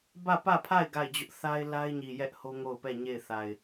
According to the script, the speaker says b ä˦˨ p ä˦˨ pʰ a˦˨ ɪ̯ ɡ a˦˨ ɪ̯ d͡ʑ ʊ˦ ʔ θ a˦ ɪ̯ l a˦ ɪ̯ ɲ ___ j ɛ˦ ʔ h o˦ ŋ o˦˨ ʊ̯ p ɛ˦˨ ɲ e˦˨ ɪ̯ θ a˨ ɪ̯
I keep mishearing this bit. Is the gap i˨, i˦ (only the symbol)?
i˨